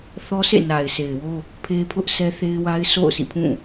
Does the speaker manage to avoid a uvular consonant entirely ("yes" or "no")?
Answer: yes